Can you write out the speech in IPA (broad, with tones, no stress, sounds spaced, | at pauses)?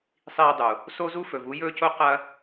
sˤ iː˧ dˤ u˨ | s o˦ z u˦ f ɵ˨ v u˨˦ j ɵː˦ c o˦ q ɐ˦